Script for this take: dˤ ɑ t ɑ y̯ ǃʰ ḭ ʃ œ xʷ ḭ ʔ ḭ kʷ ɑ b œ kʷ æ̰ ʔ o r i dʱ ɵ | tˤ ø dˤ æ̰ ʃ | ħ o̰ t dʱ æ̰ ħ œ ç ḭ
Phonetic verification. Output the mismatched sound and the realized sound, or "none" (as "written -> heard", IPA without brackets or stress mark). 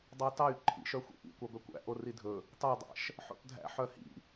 ç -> h